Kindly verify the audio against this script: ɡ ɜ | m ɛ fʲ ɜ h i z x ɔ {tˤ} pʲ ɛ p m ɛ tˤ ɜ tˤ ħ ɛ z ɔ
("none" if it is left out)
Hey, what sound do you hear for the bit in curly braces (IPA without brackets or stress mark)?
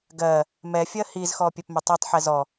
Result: none